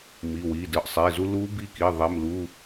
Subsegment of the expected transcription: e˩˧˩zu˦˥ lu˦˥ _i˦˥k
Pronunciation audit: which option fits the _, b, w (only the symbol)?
b